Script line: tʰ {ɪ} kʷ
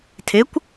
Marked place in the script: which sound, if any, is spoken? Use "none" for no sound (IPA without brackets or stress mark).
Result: ɪ